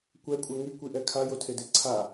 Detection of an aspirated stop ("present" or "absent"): present